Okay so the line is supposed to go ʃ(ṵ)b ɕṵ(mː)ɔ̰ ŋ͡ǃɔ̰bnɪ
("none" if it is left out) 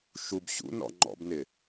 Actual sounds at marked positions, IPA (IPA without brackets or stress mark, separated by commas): u, n